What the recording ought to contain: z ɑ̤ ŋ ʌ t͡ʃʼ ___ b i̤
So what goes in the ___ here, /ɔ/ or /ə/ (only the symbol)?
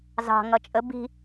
ə